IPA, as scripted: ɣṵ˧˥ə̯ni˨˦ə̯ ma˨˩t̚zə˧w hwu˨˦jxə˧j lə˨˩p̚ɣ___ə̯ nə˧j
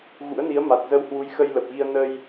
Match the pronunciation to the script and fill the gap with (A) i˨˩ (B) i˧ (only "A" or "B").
B